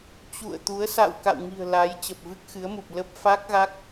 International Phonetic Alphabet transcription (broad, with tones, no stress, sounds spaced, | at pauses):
t͡ɕ ṵ˧˨ ə̯ t̪ u˨˦ ə̯ s a̰˧˨ w k a̰˧˨ w ŋ i̤˨˩ ə̯ l a˨˦ j t͡ɕ ə˨˩ p̚ v ɨ˦˥ k̚ x ɨ˨˦ ə̯ m u˨˩ p̚ l ə˦˥ p̚ f a˦˥ k̚ ɣ a˦˥ k̚